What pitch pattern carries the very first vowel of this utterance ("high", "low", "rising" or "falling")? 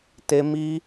high